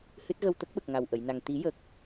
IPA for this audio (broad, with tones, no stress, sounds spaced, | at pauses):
h ɨ˦˥ t̚ ɣ ə˧ w t̪ ə˦˥ k̚ ɓ ə˨˩ k̚ ŋ a˨˩ w ʔ ə˨˩˨ j n a˨˩ ŋ t̪ i˨˩˦ j ə˨˩ k̚